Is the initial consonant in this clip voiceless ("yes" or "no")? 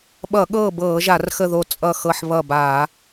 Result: no